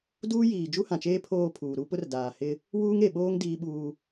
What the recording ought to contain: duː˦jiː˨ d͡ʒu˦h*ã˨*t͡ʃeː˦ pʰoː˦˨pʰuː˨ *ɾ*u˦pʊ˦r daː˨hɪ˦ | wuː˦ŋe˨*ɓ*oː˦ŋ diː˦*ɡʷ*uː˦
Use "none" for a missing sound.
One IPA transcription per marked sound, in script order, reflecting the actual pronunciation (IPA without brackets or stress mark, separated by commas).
ã˨, ɾ, ɓ, ɓ